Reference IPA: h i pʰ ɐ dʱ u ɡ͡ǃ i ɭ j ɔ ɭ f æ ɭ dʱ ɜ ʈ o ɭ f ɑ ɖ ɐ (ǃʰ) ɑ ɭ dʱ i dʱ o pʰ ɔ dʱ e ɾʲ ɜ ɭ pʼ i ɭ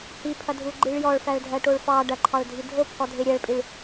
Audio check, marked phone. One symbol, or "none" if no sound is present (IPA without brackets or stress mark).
ǃʰ